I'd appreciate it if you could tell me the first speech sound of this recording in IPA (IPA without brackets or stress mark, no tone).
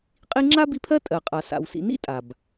qʼ